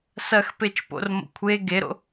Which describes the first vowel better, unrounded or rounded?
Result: unrounded